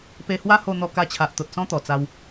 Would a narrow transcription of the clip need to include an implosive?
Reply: no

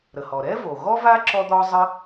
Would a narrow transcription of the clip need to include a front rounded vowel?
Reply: no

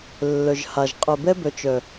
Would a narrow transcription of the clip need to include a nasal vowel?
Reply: no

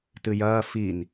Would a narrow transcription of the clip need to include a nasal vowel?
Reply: no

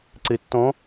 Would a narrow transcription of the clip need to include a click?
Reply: yes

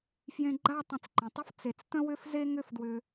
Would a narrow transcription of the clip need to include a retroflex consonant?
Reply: no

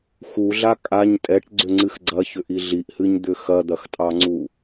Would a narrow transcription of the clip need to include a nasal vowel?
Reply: no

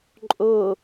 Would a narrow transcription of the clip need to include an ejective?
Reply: yes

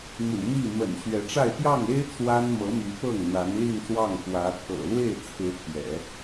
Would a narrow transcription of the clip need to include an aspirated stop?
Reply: yes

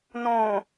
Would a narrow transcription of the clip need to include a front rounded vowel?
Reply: no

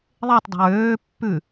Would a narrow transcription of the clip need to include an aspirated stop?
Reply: no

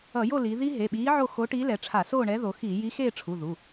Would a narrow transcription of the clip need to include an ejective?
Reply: no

